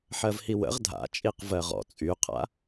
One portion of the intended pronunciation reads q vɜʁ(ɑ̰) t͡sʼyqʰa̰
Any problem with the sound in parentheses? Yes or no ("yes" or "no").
yes